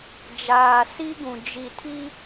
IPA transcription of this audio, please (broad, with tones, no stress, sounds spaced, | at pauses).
d͡ʒ aː˨ s i˦ ɡ ũ˨ d͡ʒ i˨ tʰ i˦